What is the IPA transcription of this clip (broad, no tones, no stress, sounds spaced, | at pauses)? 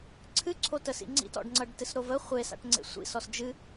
ǀʰ ɨ ǀʰ o t ə s ḭ ŋ͡ǀ ḭ t ɔ̰ ɖ ŋ͡ǀ ʌ ɖ t ɨ s ɾ o v ə χʷ e s a̰ ʈ ŋ͡ǀ ḛ sʷ ḭ s ɔ s d͡ʒ ɨ